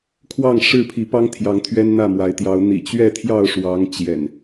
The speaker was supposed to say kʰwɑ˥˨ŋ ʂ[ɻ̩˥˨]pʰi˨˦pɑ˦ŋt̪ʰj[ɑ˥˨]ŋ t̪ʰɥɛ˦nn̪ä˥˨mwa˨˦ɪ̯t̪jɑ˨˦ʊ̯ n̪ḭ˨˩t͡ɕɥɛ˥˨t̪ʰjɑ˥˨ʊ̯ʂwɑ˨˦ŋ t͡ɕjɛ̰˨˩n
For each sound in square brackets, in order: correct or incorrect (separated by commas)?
correct, incorrect